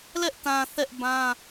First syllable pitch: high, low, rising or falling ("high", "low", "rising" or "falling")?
high